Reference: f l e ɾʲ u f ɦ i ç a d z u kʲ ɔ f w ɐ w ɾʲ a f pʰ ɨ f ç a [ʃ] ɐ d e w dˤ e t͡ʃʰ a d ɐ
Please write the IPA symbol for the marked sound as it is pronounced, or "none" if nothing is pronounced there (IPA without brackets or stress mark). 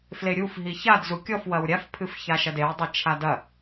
ʃ